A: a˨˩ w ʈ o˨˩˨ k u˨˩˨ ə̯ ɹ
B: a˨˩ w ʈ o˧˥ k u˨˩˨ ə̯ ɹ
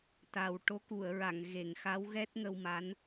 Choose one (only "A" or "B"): B